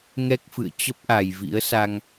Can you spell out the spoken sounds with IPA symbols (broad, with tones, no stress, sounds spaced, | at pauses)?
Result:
ŋ ɛ˦˥ k̚ f ɨ̰˧˨ ə̯ t͡ɕ ə˦˥ p̚ ʔ a˨˩ j v ḭ˧˥ ə̯ s a˧ ŋ